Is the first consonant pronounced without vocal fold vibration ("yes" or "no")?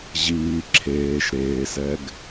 no